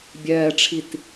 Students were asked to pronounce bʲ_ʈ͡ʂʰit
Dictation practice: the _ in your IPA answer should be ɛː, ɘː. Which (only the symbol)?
ɛː